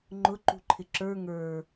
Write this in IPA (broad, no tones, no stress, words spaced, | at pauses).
ŋ͡ǃʊ ǃṳǃʰɪǁə˞ ŋə˞